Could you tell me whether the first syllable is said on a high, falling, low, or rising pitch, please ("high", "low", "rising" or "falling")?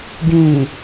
low